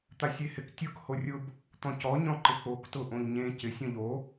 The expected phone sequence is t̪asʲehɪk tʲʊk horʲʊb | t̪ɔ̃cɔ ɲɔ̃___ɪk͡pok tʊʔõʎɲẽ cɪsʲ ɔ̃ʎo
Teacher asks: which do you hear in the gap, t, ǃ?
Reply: ǃ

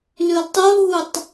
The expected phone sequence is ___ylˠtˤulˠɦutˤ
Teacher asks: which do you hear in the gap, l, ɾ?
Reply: l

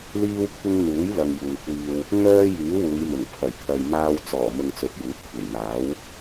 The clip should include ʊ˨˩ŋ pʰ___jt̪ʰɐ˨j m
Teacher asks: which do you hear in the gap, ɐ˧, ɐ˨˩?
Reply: ɐ˨˩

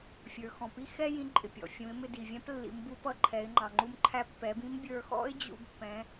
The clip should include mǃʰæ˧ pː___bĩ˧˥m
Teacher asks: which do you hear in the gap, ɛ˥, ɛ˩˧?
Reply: ɛ˩˧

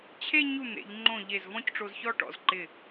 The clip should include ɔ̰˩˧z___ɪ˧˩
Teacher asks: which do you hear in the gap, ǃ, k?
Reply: ǃ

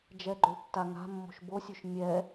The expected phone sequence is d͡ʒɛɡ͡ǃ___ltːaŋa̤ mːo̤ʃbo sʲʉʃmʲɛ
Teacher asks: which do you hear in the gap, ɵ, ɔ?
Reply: ɵ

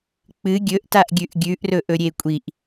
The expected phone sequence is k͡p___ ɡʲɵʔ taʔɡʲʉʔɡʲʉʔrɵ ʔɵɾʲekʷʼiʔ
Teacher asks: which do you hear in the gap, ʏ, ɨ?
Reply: ɨ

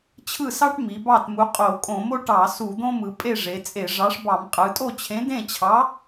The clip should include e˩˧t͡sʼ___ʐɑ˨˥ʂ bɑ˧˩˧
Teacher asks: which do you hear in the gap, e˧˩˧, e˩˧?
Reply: e˧˩˧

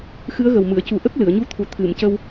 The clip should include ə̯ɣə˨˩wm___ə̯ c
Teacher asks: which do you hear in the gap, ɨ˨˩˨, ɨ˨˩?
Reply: ɨ˨˩˨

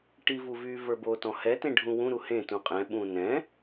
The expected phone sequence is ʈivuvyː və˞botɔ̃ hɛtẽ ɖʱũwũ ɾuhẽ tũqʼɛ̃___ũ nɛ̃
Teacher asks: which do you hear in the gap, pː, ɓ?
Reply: ɓ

